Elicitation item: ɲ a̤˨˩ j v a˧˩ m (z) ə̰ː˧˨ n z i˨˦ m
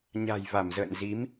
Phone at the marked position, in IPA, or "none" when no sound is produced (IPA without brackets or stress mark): z